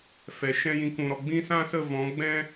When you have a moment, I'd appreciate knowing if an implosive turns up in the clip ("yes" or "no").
no